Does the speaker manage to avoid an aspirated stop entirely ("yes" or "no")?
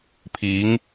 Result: no